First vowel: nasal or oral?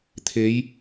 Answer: oral